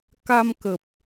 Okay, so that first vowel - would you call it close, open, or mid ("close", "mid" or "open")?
open